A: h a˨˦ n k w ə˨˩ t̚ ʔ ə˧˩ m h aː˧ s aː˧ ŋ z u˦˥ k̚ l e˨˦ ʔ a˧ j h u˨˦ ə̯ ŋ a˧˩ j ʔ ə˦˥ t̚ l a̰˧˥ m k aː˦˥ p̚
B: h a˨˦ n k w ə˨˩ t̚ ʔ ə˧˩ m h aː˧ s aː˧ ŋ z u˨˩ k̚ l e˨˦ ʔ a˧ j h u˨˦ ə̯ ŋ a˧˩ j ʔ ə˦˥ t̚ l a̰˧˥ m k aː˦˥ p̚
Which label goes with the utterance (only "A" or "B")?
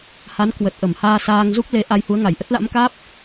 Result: A